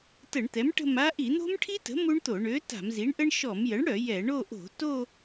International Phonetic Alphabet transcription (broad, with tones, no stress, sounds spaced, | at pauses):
t ə˧˩˧ ɳ t̪ ɛ˩˥ m ʈ ə̤˦˨ m a˦˥ ʔ i˧˩˧ n̪ o̤˦˥ m ʈʰ i˦˥ t ə̤˩˥ m u˦˥ ɳ t̪ o˧˩˧ ɳ ø˩˥ t a̤˧˩˧ m z i˩˥ ɳ ʔ ə˦˥ ɳ ʃ ɔ˧˩˧ m j ə˩˥ ɳ ɽ œ˧˩˧ j ɛ˧˩˧ ɳ o˦˨ ʔ o̤˧˩˧ t o˦˨